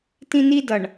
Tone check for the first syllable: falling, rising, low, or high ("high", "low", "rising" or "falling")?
high